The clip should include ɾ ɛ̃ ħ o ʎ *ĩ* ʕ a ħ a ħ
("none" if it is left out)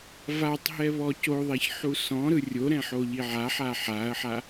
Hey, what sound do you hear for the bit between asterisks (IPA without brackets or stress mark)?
i